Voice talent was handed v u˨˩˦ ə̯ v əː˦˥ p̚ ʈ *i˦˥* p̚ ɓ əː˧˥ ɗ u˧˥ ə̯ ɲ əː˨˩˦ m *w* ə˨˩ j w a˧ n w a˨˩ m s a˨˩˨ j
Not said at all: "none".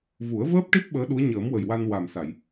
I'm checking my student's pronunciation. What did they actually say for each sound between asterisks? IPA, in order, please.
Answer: i˦˥, w

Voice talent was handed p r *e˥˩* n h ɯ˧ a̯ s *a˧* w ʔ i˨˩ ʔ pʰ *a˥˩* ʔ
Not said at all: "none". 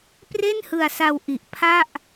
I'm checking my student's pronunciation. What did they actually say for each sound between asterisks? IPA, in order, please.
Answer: e˥˩, a˧, a˥˩

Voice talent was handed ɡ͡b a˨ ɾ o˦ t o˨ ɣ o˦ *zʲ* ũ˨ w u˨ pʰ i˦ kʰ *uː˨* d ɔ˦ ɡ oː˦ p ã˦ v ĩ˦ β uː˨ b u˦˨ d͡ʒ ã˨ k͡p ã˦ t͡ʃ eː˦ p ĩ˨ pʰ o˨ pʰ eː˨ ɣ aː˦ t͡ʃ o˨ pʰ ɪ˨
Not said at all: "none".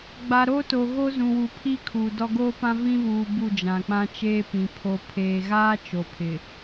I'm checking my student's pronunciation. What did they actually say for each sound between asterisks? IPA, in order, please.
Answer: z, uː˨

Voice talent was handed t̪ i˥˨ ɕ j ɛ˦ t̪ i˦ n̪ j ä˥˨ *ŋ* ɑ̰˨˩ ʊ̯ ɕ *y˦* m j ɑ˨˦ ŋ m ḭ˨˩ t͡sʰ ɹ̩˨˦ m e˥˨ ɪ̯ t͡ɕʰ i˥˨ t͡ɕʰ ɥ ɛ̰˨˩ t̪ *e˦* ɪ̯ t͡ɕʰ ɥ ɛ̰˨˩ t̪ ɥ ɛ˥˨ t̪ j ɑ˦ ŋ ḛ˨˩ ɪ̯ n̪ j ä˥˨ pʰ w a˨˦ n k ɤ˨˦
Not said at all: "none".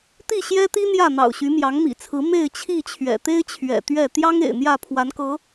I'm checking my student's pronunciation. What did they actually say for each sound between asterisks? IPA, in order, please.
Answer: n̪, y˨˦, e˦

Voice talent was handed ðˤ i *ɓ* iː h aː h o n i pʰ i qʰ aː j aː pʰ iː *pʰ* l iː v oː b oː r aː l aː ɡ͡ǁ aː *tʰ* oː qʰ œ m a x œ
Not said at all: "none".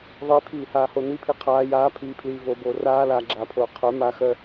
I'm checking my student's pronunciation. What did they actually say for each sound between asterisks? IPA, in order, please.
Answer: pʰ, pʰ, pʰ

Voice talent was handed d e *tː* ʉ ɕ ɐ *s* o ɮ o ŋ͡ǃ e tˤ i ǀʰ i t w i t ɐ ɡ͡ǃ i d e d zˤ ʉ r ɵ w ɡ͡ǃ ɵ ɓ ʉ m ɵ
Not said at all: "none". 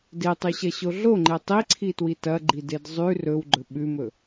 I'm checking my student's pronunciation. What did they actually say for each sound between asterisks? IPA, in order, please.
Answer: tˤ, ɕ

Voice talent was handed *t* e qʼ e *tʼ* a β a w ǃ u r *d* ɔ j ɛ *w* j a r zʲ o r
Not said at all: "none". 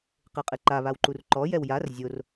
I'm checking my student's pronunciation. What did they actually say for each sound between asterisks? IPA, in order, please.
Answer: q, ǃ, ǃ, w

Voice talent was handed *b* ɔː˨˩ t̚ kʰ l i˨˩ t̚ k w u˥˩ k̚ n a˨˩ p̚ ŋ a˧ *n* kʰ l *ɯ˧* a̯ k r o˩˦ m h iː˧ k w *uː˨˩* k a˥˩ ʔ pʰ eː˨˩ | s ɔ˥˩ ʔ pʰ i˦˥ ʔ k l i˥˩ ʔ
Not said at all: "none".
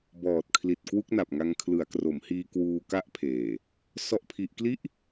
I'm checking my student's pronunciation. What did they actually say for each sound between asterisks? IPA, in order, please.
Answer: b, ŋ, ɯ˩˦, uː˧

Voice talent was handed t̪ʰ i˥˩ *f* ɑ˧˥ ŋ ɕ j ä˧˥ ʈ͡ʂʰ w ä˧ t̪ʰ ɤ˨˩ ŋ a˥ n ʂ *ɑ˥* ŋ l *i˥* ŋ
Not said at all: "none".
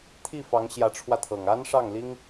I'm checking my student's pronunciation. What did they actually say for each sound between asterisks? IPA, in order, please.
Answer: f, ɑ˥˩, i˥

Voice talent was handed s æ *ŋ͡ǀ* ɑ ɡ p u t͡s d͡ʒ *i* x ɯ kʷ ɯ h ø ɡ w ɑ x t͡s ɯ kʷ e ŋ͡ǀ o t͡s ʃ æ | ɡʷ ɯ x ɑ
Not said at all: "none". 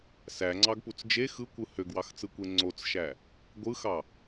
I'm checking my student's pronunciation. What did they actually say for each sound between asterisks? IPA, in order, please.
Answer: ŋ͡ǀ, e

